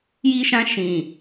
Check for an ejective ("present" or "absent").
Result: absent